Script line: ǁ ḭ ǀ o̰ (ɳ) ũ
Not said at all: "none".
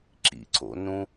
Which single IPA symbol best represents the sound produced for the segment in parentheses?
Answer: n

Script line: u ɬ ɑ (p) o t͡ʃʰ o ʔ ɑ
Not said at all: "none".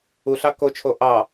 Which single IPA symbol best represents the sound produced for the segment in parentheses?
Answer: k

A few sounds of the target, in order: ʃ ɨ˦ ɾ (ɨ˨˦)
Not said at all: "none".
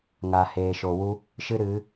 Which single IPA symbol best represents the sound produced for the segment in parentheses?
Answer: ɨ˨˦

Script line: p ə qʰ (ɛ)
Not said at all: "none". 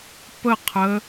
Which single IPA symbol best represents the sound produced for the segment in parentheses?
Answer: ə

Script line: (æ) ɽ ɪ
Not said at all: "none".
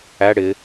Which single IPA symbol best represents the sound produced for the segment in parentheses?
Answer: æ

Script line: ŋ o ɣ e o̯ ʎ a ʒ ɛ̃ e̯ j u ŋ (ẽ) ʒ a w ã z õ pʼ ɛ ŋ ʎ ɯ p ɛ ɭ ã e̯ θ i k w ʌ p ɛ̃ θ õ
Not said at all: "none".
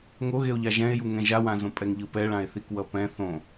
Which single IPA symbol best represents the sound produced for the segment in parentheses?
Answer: ɛ̃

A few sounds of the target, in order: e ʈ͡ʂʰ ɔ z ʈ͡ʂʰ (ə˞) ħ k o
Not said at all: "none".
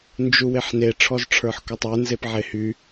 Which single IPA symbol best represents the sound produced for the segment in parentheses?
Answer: ə˞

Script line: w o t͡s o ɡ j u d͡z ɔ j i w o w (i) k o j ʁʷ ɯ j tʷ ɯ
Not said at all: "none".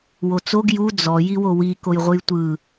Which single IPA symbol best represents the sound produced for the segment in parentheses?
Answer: i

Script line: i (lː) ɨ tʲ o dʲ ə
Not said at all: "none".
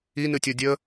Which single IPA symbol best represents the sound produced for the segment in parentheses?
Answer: n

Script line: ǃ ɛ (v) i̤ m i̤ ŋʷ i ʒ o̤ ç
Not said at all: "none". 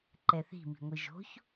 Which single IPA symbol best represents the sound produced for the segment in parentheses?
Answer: θ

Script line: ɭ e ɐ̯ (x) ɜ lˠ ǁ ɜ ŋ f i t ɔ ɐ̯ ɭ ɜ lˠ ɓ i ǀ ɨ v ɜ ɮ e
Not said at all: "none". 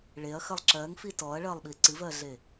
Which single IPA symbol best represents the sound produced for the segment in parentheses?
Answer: x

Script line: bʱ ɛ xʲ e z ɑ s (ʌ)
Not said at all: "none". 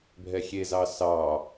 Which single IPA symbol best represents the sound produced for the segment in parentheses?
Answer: ɑ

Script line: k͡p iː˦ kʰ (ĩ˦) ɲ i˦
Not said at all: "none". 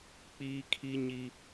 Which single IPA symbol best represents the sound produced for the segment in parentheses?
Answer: i˦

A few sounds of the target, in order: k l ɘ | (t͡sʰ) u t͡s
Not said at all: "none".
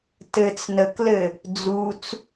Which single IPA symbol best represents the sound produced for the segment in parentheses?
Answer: d͡z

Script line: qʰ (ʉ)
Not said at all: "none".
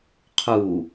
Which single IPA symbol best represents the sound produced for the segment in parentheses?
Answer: u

